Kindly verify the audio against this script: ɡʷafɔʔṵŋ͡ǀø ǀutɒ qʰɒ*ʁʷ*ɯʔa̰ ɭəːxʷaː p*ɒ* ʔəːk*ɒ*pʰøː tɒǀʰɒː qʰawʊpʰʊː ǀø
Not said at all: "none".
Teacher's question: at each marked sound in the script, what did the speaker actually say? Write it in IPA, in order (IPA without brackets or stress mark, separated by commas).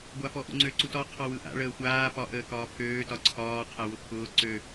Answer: w, ɒ, ɒː